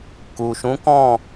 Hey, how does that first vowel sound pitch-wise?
low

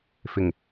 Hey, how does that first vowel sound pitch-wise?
low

